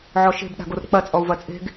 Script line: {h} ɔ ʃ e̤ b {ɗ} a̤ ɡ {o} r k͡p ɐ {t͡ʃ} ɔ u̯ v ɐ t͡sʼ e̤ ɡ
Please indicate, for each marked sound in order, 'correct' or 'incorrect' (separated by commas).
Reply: incorrect, correct, correct, incorrect